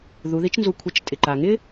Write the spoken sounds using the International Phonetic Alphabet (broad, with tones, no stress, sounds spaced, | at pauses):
ð u˩˧ ð i˧˥ t͡ʃ n z u˧ kʷʰ ɪ˧ t͡ʃ tʼ ɪ˩ ǃ a˩ ŋ ɪ˥